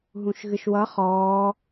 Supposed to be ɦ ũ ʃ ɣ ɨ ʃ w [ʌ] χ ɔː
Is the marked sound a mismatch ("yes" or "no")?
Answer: no